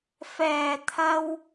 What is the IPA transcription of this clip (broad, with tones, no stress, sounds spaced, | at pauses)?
f ɛː˨˩ t̪ʰ ɐ˧ w